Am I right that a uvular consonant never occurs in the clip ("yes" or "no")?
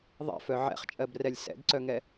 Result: no